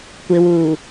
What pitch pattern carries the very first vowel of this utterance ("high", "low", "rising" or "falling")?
low